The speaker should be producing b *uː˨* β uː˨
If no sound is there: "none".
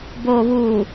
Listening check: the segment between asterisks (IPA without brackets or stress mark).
oː˨